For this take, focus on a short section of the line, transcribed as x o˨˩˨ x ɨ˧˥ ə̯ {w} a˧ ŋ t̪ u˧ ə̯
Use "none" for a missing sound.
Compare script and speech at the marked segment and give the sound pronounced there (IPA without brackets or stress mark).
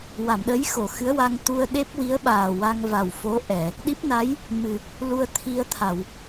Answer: w